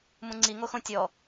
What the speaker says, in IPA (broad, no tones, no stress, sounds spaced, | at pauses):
m ũ ŋ͡ǀ i ŋ o x õ tʲ ɔ